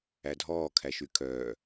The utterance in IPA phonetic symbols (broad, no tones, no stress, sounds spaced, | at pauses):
æ dʱ ɔː kʰ æ ʃ y kʰ œː